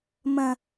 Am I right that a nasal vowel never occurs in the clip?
no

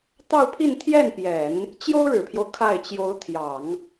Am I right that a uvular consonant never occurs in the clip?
yes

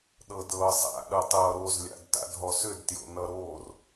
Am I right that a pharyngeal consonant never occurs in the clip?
yes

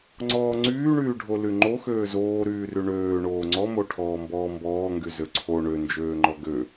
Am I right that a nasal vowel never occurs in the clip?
yes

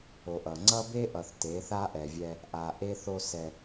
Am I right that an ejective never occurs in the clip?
yes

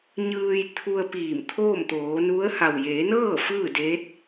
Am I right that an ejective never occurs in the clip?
yes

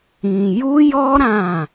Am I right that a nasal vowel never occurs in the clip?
no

